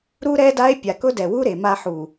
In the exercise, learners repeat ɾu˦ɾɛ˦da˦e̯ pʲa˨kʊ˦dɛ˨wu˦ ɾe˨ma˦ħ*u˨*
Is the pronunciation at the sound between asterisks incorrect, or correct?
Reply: correct